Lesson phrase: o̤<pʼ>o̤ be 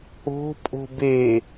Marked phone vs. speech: correct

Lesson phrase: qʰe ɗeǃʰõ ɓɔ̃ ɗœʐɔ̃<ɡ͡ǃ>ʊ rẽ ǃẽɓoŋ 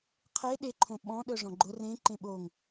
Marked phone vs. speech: correct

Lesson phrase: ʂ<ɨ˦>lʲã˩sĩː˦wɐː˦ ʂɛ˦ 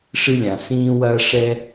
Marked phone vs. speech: correct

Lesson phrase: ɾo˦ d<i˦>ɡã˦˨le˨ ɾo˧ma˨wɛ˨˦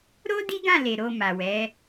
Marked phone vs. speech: correct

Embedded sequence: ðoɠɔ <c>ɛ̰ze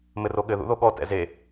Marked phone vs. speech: incorrect: t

